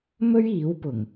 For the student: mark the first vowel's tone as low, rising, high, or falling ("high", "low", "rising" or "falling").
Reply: high